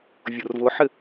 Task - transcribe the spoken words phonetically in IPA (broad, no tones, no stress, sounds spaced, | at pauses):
vʲ ʊ r v ʊ ħ ɪ